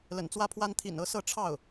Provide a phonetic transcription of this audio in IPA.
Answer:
lə̰˨˩nt͡swä˥pʰwa˥n t̪ʰḭ˨˩nɤ˧˥ sɤ˥˧ʈ͡ʂʰɑ˥˩ʊ̯

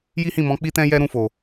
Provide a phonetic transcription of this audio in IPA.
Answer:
ji˦hĩ˦˨mɔ̃˨˦ k͡pi˦tɛ̃˦ jɛ˦ɾũ˧fo˨

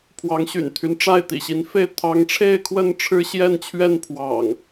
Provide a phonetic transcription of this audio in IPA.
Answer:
pʰwɑ˨˦ŋɕy̰˨˩nt̪ʰy˦nʈ͡ʂa˥˨ɪ̯ t̪ḭ˨˩ɕi˨˦nfe˥˨ɪ̯ t̪ʰɑ˨˦ŋʈ͡ʂʰe˥˨ɪ̯kʰwə˥˨n ʈ͡ʂʰɻ̩˦ɕjɛ˥˨nt͡ɕʰɥɛ˥˨n pʰwɑ̰˨˩ŋ

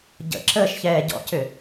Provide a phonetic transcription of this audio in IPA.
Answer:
ɟə̰ ǁəːʃçɛːɟɔ̰cʏ

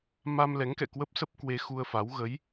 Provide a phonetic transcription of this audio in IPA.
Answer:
ma˧m lɛ˨˦ŋkɛ̰˧˨kwə˦˥p̚ sə˦˥p̚kwe˧xu˧ə̯fa˨˦w ɣə˨˦j

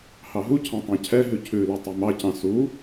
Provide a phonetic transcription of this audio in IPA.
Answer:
hɑɦucʰɑ̃ tˤɑ̃cʰɛɦʉ cʰʉlʉ tˤymɑcɑ̃ su

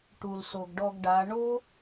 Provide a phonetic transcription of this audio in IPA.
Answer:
ʈu˨lso˨ɡɖɔ˧ɡɖa˨˦ ɳo˦

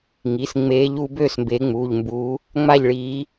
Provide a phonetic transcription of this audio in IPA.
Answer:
ŋi˩˧˩sŋ͡meː˨˦ʎ u˨˦ bøː˦˨smbeː˨˦ŋ͡muː˩˧˩ʎmbuː˨˦ | ŋ͡ma˦˨ʎɭiː˨˦

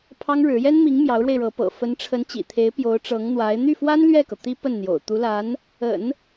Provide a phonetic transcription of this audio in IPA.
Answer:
pʰɑ˥ŋɻɻ̩˧˥ jɛ˥nmi˧˥ŋ mjɑ˧˥ʊ̯ɻwe˧ɪ̯ɻɤ˧˥pɤ̰˨˩ fə˧˥nʈ͡ʂʰə˧˥nt͡ɕḭ˨˩t̪ʰe˧˥ɪ̯ pjo˧˥ʊ̯ʈ͡ʂɤ˧˥ŋn̪wa˧˥ɪ̯ n̪y˥˩fwa˥n lɥɛ˥˩kɤ˩ t̪i˥pə˥˩nn̪jo̰˨˩ʊ̯ t̪u˧˥la˧˥n | ə̰˨˩˦n

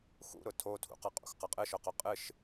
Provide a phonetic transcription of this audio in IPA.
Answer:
xṵɾʊ tʰotʰṵqʌqʼṵx qʌqʼɨʃʊqʊ qʼɨʃ

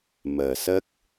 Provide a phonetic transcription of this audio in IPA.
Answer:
məː˨˩sə˦˥k̚

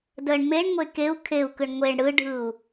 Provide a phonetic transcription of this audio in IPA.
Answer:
dəɳ meɳ ŋʷekeu̯ kʰeu̯ kɯɳŋʷeɳ ɽɯɖʱɯu̯

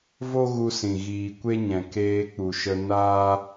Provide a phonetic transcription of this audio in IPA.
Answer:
vo˦ɣu˧sĩ˨ ɣiː˨kʷe˦ɲɛ̃˨ keː˧k͡pu˨ʃə˧ naː˦

